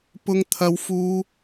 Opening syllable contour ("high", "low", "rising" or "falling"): high